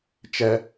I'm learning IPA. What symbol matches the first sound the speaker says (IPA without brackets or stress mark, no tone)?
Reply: t͡ʃ